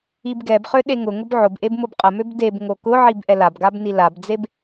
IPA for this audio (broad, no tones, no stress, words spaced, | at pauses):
ibɡɛbχø ɗeŋʊŋʊb ʕʊbʔeb mʊbqʼəmøb deb ŋokʊʕib ʔɛlabɡab nilabd͡zeb